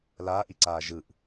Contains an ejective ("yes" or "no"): no